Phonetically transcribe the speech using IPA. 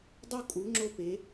dˤ o˥ kʼ u˧˥ ŋ͡ǁ o˥ p e˧˥

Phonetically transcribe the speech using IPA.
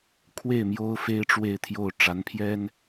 kʰ w e˥˩ ɪ̯ m j o˥ ʊ̯ f e˥ ɪ̯ ʈ͡ʂ w e˥˧ ɪ̯ t̪ʰ j o˥˩ ʊ̯ ʈ͡ʂ a˧˥ n pʰ j ɛ˥ n

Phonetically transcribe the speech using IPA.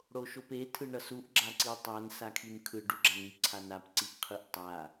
ɽ o ʃ o p e tʰ ɯ ɳ ʌ s u ʔ ɡ͡ǁ a ǀ i tˤ a n s a kʰ i n kʰ ɯ ɖ u ɡ͡ǁ a n i ǀʰ a n a p ǀ i ʔ qʰ ɯ ʔ tˤ a

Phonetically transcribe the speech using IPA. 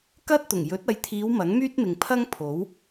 k ɐ˥ t̚ t̪ ʊ˨˩ ŋ j ɵ˨˥ t̚ ɐ˨˧ j t̪ʰ iː˨˧ w m ɐ˨˥ ŋ m yː˥ t̚ m ɪ˨ ŋ pʰ ɐ˥ ŋ pʰ o˨˥ w

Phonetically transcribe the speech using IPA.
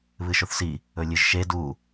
β ɨ ʃ o θ s i | ɵ lʲ ɨ ʒ ʃ e d u

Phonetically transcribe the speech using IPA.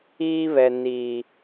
iː˦ β ɛ˨ n i˨

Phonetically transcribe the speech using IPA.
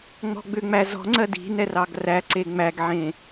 ŋ͡m ɔ̤ ɡ͡b ʏ ŋ͡m æ z ɔ̤ ŋ͡ǀ ɜ d i̤ n ɛ r ɑ ɡ r æ ǀ e ŋ͡m æ ɡ ʕ ẽ

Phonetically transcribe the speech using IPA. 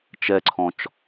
t͡ʃ ɛ ǀʰ ɔ̃ t͡ʃ

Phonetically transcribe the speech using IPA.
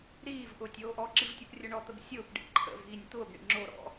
ɾ iː v ʔ ʊː tʲ oː ʔ ɔ ǁ i v tʲ o p rʲ ʊ ɳ ɔ t̪ ə b sʲ ʊː p ɖ ḭ ǃʰ ə̰ v iː nʲ t̪ ʊː b ɳ ḭ ŋ͡ǁ o ɾ ɔ̰

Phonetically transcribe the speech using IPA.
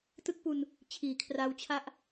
t ɯ˥˩ k̚ p u˧ n | t͡ɕʰ iː˩˦ kʰ r a˦˥ w t͡ɕʰ a˥˩ ʔ

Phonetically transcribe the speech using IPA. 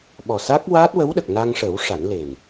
ɓ ɔ˨˩ s a˦˥ k̚ w aː˦˥ t̚ w ə˧˥ w ɗ ə˨˩ k̚ n a˧ ŋ ʂ ə˨˩˦ w ʂ a˨˩˦ n l e˨˩ n

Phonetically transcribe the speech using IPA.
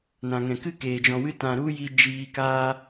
n ã˨ ŋ ɛ̃˨ k ɨ˦ k eː˨ d͡ʒ ɔ̃˨ w ɨ˧ t ã˨ ɾ u˦ j i˧ d͡ʒ iː˧ k aː˦

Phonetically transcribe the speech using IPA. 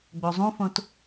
ɡ͡b o zˤ ũ f õ t

